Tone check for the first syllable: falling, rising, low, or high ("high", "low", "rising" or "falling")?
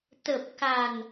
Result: low